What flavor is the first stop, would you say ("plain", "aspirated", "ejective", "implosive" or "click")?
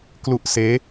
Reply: plain